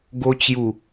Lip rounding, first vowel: rounded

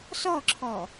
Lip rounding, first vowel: rounded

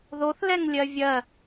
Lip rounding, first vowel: rounded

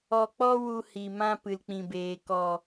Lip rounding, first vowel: rounded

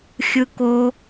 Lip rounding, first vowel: unrounded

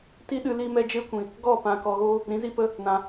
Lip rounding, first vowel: unrounded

